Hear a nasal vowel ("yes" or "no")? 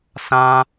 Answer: yes